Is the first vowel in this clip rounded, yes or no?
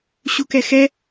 yes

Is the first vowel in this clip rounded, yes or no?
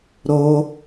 yes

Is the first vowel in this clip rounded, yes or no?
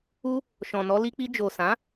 yes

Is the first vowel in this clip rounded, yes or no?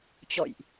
yes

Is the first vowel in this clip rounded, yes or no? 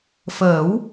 no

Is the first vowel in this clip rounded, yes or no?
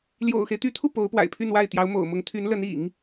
yes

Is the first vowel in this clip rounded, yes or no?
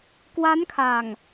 no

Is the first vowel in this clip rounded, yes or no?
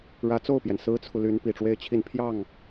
no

